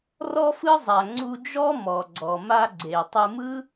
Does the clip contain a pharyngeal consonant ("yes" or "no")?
no